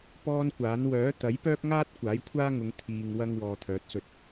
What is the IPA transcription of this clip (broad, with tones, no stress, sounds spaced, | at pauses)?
p ɔː˥ n kʷ aː˨˥ n w œː˨˥ t̪ ɐ˨˥ j p œː˥ k̚ ŋ aː˥ t̚ kʷ aː˨˥ j kʷʰ aː˥ ŋ ʊ˨˧ ŋ t̪ʰ iː˧ ŋ w ɐ˥ ŋ w ɔː˧ t̪ʰ œː˨˥ t̚ s ɵ˧ t̚